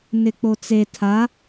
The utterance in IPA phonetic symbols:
nɪk͡pot͡se tʰa

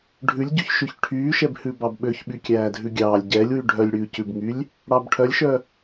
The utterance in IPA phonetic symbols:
ɖʱʉlʲɟyçʃʉç ʈʰyːʃɛbhʉ bɑbɓøç ɓykʲæːdʱʉɡʲɑːlʲ ɟɛlʲwy ɖʱœlʲɽʉːcʉbŋylʲ | ɽɑbʈʰœlʲʃœ

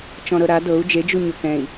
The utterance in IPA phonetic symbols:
t͡ʃɔ̃ɾɤɾa dɤu̯ d͡ʒed͡ʒu ɲokɛ̃i̯

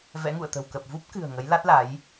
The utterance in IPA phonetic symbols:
vɛ̰˧˥ŋṵ˧˨ə̯t̪ə̤˨˩w kə˨˩p̚vu˦˥p̚kɨ̤˨˩ə̯ ŋə˨˦jla˦˥t̚la˨˦j

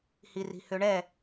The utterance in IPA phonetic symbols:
hiri̤høɳɛ

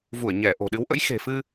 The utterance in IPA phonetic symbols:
vu˧˩ə̯ɲɛ˧˩ ʔo̤˨˩ɗɨ˨˦wʔə̰˧˥j xe̤˨˩fɨ˧

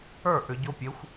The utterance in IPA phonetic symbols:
ə˞˥˩ ʔʏ˩˧ɟo˦˥pʲe˩˥xʷ

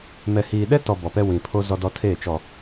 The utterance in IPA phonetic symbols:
mɛ˨hiː˨ɗɛ˦tɔ˨ bɔ˨pɛ˦wĩ˨ pʰo˦zɔ˦dɔ˦ tʰeː˦˨t͡ʃɔ˨

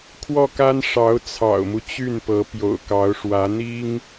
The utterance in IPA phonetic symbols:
kʰwɔ˥˩ka˥n ʂɑ˧˥ʊ̯ t͡sʰɑ̰˨˩ʊ̯mu˦ t͡ɕy˥˩npɤ˧˥ pjo̰˨˩ʊ̯kɑ˧˥ʊ̯ʂwä˧˥ n̪i˥ŋ

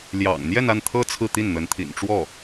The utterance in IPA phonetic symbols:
ljɑ̰˨˩ŋ n̪jɛ˥˧na˥˩nt̪ʰɤ˥ t͡sʰɹ̩˥˧t̪i˥˩nn̪ə˧˥n t̪ʰḭ˨˩nʈ͡ʂwɔ˥˩

